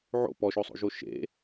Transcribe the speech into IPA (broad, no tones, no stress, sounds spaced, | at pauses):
ʕ o̰ p ɔ ʃ o sˤ o̰ ʒ o ʃ ḛ